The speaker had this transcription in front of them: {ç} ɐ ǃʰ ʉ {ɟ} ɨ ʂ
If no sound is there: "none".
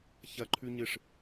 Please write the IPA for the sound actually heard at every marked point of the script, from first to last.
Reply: ç, ɲ

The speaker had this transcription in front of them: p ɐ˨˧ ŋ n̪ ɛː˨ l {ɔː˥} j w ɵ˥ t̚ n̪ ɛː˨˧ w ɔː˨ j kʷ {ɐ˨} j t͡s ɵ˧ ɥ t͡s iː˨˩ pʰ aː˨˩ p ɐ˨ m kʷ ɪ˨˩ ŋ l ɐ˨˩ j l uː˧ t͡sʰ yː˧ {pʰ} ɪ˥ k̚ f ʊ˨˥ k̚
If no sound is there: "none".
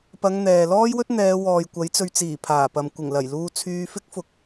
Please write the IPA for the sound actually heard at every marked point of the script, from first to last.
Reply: ɔː˥, ɐ˨˥, f

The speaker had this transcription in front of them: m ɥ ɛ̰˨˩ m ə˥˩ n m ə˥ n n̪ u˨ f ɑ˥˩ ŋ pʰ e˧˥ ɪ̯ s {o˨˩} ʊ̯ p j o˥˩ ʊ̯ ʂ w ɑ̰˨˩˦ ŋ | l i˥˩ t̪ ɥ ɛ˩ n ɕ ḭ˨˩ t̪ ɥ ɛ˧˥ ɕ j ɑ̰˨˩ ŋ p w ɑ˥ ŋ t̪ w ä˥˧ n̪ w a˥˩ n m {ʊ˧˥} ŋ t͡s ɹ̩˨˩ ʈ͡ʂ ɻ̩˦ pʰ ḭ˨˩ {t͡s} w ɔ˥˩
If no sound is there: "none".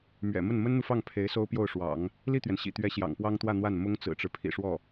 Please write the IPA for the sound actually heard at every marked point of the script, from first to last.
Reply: o˥, ʊ˥, ʂ

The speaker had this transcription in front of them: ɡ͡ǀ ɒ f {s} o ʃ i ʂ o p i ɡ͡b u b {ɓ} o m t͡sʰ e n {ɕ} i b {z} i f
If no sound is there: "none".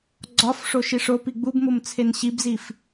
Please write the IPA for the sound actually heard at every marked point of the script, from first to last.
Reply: ʂ, m, ɕ, z

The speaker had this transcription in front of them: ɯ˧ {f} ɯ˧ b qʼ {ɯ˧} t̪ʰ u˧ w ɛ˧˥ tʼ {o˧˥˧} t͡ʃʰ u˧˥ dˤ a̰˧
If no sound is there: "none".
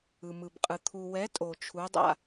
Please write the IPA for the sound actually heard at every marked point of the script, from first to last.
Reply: m, ɯ˧, o˧

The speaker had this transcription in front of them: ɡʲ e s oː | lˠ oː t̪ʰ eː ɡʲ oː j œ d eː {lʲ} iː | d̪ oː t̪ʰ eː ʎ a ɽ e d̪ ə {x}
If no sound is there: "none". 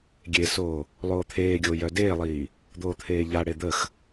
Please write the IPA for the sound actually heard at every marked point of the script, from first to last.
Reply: lˠ, x

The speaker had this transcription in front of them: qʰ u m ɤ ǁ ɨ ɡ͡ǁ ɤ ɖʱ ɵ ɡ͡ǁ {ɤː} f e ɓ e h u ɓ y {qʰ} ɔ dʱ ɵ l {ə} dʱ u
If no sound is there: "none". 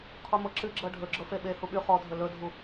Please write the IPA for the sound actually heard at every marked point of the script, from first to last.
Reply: ɤ, χ, ɵ

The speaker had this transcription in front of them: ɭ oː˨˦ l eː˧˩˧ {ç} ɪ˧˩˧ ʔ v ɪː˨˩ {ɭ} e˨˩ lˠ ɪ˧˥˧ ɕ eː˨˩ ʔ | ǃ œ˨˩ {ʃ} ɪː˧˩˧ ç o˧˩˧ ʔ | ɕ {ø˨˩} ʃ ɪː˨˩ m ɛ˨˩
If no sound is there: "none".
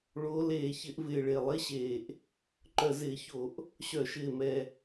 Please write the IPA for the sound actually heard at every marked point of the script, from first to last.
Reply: ç, ɭ, z, œ˨˩

